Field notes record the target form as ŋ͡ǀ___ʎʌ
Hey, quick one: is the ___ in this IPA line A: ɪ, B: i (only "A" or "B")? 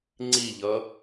B